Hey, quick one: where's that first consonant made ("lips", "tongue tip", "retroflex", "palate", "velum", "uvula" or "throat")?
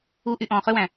throat